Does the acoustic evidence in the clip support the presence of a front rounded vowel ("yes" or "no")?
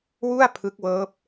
no